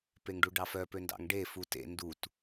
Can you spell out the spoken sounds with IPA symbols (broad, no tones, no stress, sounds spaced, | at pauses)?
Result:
p e ŋ ɖ u ɖ ɑ f œ p ø n d ɑ̰ ŋ ɖ e f u t ḛ n d u t